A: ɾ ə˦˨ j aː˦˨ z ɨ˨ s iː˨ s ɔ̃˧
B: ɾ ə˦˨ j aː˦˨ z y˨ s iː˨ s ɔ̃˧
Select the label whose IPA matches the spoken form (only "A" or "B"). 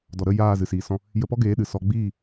A